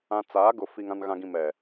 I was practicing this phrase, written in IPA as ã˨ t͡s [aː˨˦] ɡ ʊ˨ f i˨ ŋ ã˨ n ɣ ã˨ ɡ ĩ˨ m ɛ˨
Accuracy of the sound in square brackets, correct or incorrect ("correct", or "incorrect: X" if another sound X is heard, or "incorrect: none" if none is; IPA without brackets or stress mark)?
correct